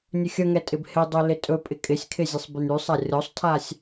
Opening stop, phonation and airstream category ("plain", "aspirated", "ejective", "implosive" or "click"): ejective